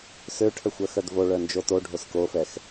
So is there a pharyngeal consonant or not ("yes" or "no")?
no